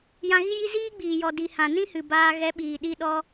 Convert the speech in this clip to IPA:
j ã˧ ɣ i˦ j i˦ z iː˦ ɡ͡b iː˨ j ɔ˨ d i˨ h ã˨ n ĩ˦ h ɨ˨ b aː˧ ɣ ɛ˨˦ ɓ iː˨ ɗ i˧ ɗ ɔ˧

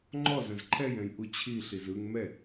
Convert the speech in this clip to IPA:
ŋ͡ǃ ɔ z ɐ̃ z ǃʰ ɛ j ɛ̃ j ʔ u t͡ɕʰ i ɬ i z ɯ ŋ m ɛ

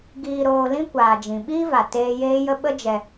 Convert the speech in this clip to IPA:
ɡ iː˧ ɾ oː˧ l ĩ˦ kʷ aː˨ d͡ʒ ĩ˨ ɓ iː˦ v a˨ t eː˦ j eː˦ j ə˦ ɓ ə˦ d͡ʒ ɛ˧

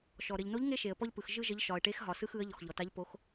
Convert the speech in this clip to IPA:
ʃ ɔ˩ ɾ ɘ˩ ʎ n o˧˥ ʎ ŋ e˥ ʃ e˩ ə̯ p ɔ˥ ʎ p ɯ˩ x ʒ ɯ˥ ʒ ə˧˥ ʎ ʃ ɒ˩ ə̯ ʈ e˧˥ x ɦ ɒ˩ s ɯ˥ x ɯ˧˥ ə̯ ʎ ɔ˩ x ʎ ɔ˩ t a˧˥ ʎ p o˧˥ x

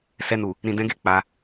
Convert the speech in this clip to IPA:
s ɛ˧ n u˨ | ɾ ĩ˨ d ɛ̃˨˦ ɡ e˦˨ k͡p a˧

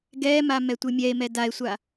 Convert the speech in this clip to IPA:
ɡ ɛ m a m ɛ tʷ ɨ mʲ ɛ e̯ m ɛ d a e̯ sʷ a

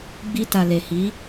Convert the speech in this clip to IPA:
ɡ͡b i˧ t a˨ l e˨ h i˨˦

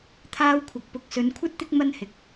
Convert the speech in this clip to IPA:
t̪ʰ aː˥ w kʷʰ ɐ˨ k̚ p ʊ˨ k̚ s ɵ˨˧ n kʷʰ ɐ˥ t̚ t̪ ɪ˥ k̚ m ɐ˥ n h ɪ˨˥ k̚

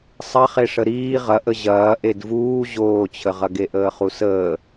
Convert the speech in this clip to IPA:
sˤ ɐ χ e ʂ ə ɾ iː ʁ ɐ ʔ ə ʑ ɐː ʔ e d v uː ʑ oː t͡ɕʰ ə ʁ ɐ ɡ e ʔ əː χ u s əː

